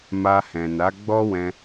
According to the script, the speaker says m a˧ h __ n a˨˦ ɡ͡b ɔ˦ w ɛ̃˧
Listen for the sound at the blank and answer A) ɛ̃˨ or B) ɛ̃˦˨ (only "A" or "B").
A